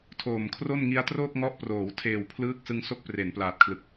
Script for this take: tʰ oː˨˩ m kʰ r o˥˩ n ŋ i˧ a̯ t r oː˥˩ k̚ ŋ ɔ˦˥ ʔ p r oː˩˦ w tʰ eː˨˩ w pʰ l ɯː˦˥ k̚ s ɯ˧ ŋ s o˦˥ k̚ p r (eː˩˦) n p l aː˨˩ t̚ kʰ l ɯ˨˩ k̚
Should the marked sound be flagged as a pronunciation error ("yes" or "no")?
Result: yes